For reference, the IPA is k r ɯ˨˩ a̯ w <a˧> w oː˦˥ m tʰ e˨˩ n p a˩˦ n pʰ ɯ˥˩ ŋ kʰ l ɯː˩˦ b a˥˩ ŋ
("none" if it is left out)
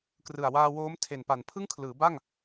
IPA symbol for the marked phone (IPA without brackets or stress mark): aː˧